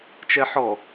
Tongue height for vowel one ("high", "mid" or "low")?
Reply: mid